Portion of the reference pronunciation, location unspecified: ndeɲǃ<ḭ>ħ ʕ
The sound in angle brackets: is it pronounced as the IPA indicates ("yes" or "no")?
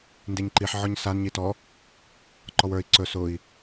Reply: no